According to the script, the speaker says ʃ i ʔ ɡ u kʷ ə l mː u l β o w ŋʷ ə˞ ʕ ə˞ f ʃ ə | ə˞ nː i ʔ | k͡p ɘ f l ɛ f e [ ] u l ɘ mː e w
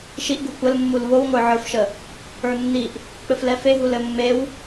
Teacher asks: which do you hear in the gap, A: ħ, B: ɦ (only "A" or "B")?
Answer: B